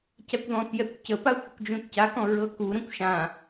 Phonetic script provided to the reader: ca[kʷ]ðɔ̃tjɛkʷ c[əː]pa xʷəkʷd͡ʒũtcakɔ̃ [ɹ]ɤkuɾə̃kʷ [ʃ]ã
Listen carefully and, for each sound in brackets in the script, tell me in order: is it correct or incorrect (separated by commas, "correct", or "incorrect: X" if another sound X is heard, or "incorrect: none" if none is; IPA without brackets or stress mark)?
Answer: correct, incorrect: ə, correct, correct